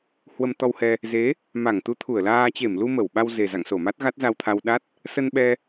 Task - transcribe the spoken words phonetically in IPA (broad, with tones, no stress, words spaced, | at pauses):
hwə˧mt̪ɔ˧whɛ˧ | ze˨˦ | ma˧˩ŋt̪u˨˦t̪ʰu˧˩ə̯laː˧ t͡ɕe˧˩mlu˧ mə˧˩wɓa˧w ze˨˩za̰˧˨ŋso˧˩ ma˦˥t̚ɣa˦˥t̚za˧wt̪ʰa˧w ɗa˦˥t̚ | sə˧nɓɛ˧